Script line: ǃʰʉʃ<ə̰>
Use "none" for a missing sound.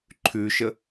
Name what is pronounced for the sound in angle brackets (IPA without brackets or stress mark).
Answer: ə